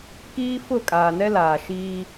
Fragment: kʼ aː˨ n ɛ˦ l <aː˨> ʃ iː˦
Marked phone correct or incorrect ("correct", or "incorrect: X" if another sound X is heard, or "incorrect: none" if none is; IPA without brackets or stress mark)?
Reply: correct